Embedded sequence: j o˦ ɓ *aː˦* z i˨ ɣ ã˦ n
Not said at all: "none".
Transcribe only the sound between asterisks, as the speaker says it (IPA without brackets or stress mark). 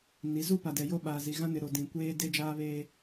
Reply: aː˨